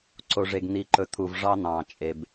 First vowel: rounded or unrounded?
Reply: rounded